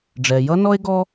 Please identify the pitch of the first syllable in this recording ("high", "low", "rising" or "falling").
low